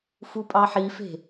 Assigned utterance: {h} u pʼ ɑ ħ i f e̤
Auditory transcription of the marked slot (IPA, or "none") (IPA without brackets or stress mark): f